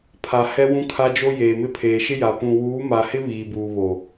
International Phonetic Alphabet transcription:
pʰ a˨ h ɛ˦ w ũ˦ kʰ a˦ d͡ʒ o˦ j eː˨ m ɪ˦ pʰ eː˨ ʃ ɪ˦ j a˨ p ũ˨ w uː˨˦ m a˨ h ɪ˦ β iː˨ b uː˨ β o˨

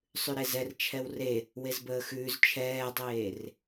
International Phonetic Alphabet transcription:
sˤ ʉ ɾ e z ɛ r t͡ʃʰ ɛ w r e | w e z b əː x ʉː z t͡ʃʰ ɛː dˤ eː r

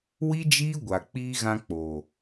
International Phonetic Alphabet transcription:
w i˦ d͡ʒ iː˦ ɡʷ a˨ k͡p iː˦ ɣ ã˧ k͡p o˨

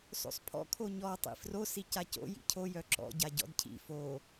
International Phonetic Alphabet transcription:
s o̰ sˤ pʰ ɔ̰ kʰ o ɲ ɔ tˤ ḭ f r o s i c a c o̰ j ḭ cʰ o j œ ǁ ɔ̰ ɟ a ɟ ɔ̰ d cʰ ḭ f o

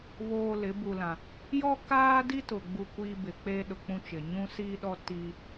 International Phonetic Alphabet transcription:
β oː˨ l ɪ˨˦ b u˨ l ã˨ | j ɔ˦ k aː˦ d i˦ t ʊ˨ ɡ͡b u˦ kʷ iː˦ b ɪ˨ k͡p e˦ ɗ ʊ˨ k͡p ũ˦ t͡ʃ ɪ˨ ɲ ũ˦ s iː˦ ɗ ɔ˦ t i˦

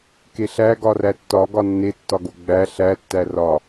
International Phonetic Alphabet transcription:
k e ɬ æ ɡ ɒ r æ tː ɒ ɡ ɒ nː e tː ɒ ɡ o ɡ͡b æ ɬ æ tː æ r ɒ

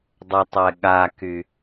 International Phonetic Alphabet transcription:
dˤ ə tˤ ɛ ɠ a k y

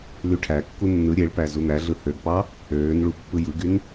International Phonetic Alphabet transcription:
l y ʈʰ æ kː u nː ɯ ɾʲ e ɭ p æ z u n̪ æ ɮ ɯ h ø ɡ p ɑ | øː n ɭ u pː ɯ j ɯ ɡ y n

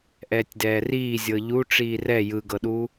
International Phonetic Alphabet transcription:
ʔ ɛː tʲ d ɛː r iː zʲ ɤ ʎ u ʈ͡ʂ iː r ɛ j ɯ ɡ ɤ ɗ u

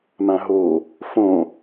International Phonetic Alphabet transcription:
m ã ɦ o | f õ

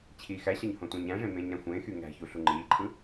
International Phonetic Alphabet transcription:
t͡ɕʰ iː x æ ɕ ɑ ɲ h õ tʷ ẽ ɲ æ̃ ʐ ẽ m ẽː ɲ ɾ æ̃ xʷ ẽː x y ŋ æ̤ ç u ɬ u ŋ͡ǃ iː ǃʰ ɯ

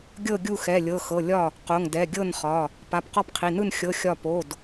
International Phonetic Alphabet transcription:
ɡʲ ɤ˥˨ ɡʲ u˥˨ x ɛ˩˧˩ lʲ ɤ˩˧˩ x ɤ˩˧˩ lʲ ɒ˥˨ | q o˩˧˩ ŋ d ɛ˩˧˩ ɡʲ ɤ˥˨ n χ ɒ˩˧˩ | p a˩˧˩ p q ɒ˥˨ p qʰ i˩˧˩ n ɯ˥˨ n xʲ ɤ˩˧˩ xʲ ɒ˥˨ p o˩˧˩ d

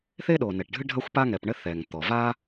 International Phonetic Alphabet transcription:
θ e˥ ɗ o˩ n ɛ˩ ʈ ɖʱ ɨ˥ ɖʱ ɐ˥ xʷ p a˥ ŋ ɛ˩ p ɳ ɘ˥ θ ɛ˩ ŋ t̪ ɔ˩ v a˥

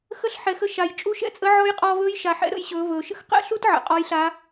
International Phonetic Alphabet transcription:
x ə˧ ɬ ħ ɛ˩˧ x ə˥ ʃ a˩ j t͡ʃʼ u˧˥ ʃ ɛ̰˧˥ t͡sʼ ə˧˥ ʕ ɔ˧˥ j qʼ ɔː˧ v ɵː˧˥ j ʃ a˩˧ ħ ɛ̰˥ ɾ ə̰˧ j ɕ ɵː˩˧ v ɵː˩ ʃ ə̰˥ x q ɛ̰˥ ɬ u˥ t ʕ ə̰˩ qʼ ɔ˧˥ j ɬ a˧˥

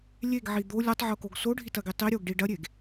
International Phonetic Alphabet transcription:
lʲ e ɡ ʕ i d̪ o lʲ o tˤ ʕ o k o ɡ s o ɖʱ i t ɐ ɡ i tˤ i ɾʲ o ɡ ɖ i ɖ ɐ ɾʲ e ɡ

